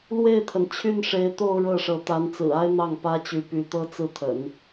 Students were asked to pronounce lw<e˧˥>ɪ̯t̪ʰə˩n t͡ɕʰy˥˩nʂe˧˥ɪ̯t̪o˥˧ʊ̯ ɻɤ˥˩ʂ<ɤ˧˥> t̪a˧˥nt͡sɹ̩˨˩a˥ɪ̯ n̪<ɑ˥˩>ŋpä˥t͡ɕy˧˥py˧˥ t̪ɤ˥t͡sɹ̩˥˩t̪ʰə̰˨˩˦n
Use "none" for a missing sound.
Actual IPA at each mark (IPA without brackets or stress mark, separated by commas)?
e˥˩, ɤ˧˥, ɑ˥˩